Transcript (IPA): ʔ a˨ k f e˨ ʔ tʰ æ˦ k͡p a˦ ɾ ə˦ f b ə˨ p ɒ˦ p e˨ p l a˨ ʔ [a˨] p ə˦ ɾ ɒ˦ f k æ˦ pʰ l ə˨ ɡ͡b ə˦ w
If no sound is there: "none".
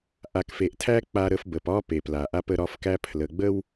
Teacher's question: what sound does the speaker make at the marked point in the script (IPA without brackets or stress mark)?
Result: a˦